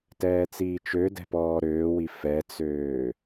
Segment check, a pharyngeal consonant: absent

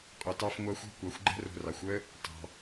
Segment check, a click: present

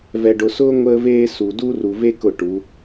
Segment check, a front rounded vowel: absent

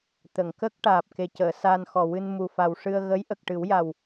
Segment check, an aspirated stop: absent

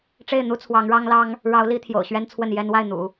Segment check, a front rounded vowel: absent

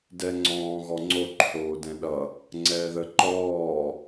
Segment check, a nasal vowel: present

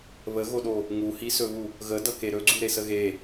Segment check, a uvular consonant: absent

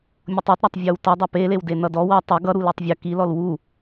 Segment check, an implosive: absent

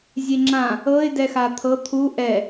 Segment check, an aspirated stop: present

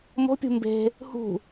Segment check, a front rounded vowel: absent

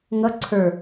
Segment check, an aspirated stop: present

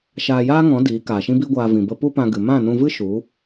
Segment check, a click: absent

